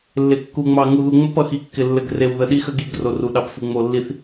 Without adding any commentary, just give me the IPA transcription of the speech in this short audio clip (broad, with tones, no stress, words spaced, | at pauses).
lːɪ˨ kːu˨ŋ͡mɑ˨ ŋu˨ðu˨ŋ͡mɘ˦pʌ˨ xi˨kːɪ˨ lːɘ˨ɡre˨w ðə˨ɗi˦xə˦ɡi˦˨ɡ ro˨ru˨ɗɑ˨pfu˨ ŋ͡mo˨lːi˨θ